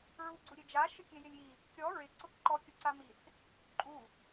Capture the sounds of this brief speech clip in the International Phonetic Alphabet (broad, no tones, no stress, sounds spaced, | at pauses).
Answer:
ɹ u ɡ͡ǀ u ɾʲ e d͡ʒ a ʃ ɪ kʲ e j ɪ lʲ i | kʲ ɔ ɹ ɪ ǀ ʊ k ǃ ɔ kʲ ʊ ǀ a m i θ | ǃʼ u